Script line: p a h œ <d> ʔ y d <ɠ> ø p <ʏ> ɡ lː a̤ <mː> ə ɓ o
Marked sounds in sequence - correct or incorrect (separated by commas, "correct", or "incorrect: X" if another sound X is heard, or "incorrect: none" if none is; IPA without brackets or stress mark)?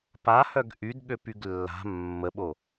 incorrect: ɡ, correct, incorrect: y, correct